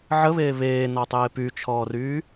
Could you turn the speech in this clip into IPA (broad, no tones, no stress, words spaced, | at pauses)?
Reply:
ʕəβeː βeːnɔtˤeː pyt͡ʃʰɔːryː